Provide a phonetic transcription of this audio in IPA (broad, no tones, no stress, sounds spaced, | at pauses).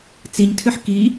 t͡s i ɲ tʰ ʏ ħ k i